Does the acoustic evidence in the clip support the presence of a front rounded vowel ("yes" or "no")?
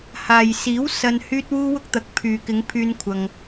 yes